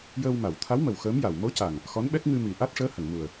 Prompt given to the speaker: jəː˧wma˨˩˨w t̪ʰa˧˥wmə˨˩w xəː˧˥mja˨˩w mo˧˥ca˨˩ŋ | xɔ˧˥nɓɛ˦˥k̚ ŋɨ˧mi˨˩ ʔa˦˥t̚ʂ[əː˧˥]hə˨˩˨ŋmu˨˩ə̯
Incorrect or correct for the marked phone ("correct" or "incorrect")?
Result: correct